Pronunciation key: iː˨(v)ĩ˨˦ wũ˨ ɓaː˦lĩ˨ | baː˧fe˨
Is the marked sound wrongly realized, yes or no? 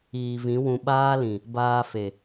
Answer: no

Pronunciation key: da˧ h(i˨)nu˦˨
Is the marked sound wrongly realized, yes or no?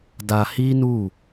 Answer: yes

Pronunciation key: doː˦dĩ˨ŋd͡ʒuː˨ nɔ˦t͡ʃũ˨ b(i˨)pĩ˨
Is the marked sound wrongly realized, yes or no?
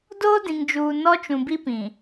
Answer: yes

